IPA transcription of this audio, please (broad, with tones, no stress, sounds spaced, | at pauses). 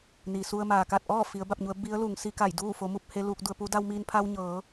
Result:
n i˩ s u˧ ə̯ m aː˩ k a˥˨ t̚ ʔ ɔː˥˨ f i˩˧ ə̯ b a˥˨ p̚ ɲ u˩˧ ə̯ b i˧˥ ə̯ l uː˩˧ ŋ s i˧ k a˧˩ j d uː˥˨ f o˩˧ m u˥˨ p̚ h e˧ l uː˧ k̚ d u˧ ə̯ p uː˧˥ d a˧ w m iː˧ n pʰ a˧ w ɲ ɤː˩˧